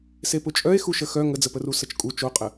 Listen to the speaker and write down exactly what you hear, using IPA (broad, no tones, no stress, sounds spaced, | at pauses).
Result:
s e p ʊ t͡ʃʼ œ e̯ x u ʃ ə x œ ŋ ə d͡z ə p ə r u s ə t͡ʃ kʼ u t͡ʃ o qʼ ə